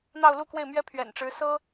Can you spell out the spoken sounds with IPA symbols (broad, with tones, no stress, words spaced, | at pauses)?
n̪ɑ˥˧ʊ̯lu˥˧kwe˥˩ɪ̯mɥɛ˥ pʰɥɛ̰˨˩nʈ͡ʂɻ̩˧˥ sɤ˥